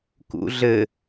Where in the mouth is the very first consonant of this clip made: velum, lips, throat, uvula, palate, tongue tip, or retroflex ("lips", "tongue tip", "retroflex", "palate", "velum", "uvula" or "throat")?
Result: velum